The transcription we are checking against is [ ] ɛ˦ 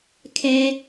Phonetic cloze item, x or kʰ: kʰ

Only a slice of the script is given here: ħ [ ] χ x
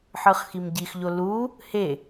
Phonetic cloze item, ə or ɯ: ɯ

